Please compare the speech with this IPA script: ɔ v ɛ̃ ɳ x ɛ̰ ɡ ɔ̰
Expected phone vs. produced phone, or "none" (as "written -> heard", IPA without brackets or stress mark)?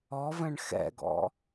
none